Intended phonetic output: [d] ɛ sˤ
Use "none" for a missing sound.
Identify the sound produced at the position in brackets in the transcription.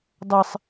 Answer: dˤ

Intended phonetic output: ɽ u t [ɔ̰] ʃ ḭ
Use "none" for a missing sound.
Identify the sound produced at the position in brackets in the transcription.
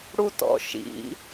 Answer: ɔ̰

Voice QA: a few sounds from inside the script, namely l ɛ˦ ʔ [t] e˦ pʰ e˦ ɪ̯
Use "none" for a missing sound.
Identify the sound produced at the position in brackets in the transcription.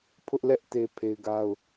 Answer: t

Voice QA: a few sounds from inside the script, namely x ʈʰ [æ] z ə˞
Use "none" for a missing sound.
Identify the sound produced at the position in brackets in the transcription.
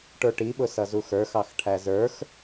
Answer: æ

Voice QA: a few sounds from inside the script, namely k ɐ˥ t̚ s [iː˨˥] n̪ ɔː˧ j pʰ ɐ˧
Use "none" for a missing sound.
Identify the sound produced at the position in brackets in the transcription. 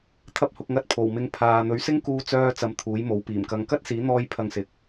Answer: iː˨˥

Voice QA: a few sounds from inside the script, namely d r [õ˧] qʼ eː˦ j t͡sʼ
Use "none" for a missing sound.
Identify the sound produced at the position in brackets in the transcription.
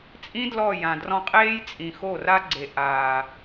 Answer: ɔ̃˧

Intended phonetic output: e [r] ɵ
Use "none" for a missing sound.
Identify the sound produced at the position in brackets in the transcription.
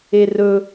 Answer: r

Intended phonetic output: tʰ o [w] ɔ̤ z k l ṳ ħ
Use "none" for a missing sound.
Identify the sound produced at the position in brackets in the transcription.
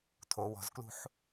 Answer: w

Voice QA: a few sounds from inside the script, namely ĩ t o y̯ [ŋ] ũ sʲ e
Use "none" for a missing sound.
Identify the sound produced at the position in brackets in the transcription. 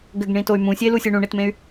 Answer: m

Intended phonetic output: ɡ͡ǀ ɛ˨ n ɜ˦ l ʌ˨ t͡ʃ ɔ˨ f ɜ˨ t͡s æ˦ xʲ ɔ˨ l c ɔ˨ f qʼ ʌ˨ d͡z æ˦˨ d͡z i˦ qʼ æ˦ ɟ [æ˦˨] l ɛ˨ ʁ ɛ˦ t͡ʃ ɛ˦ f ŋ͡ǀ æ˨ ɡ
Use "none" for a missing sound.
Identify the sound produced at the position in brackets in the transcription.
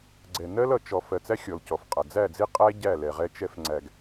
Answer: æ˦˨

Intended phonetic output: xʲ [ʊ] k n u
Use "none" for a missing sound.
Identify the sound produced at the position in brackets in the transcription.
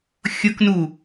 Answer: ʊ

